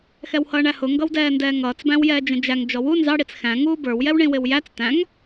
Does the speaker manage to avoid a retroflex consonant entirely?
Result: no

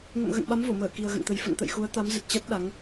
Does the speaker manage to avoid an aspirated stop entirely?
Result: yes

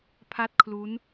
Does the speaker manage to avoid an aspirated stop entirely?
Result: no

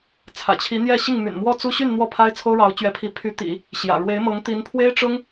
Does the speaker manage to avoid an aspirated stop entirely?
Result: no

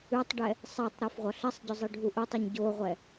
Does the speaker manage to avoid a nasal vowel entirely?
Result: yes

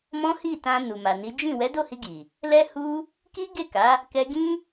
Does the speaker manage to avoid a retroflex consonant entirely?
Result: yes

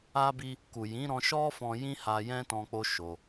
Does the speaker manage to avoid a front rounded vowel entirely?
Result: yes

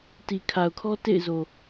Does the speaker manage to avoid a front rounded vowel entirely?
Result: yes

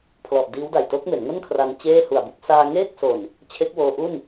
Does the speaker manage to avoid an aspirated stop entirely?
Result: no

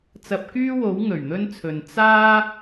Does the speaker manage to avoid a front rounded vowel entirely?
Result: no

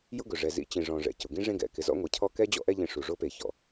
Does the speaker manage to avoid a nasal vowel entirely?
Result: no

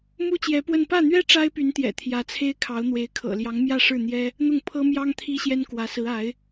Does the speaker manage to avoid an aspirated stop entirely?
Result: no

